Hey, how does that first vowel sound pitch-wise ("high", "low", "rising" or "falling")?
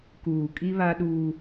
low